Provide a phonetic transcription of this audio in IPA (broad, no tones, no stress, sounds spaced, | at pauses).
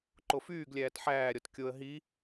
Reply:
ǃ o f yː ɡ lʲ æː t ħ æː ɾʲ ɔ t kʲ o ə̯ ɦ i